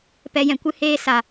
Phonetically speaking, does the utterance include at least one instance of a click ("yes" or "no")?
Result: no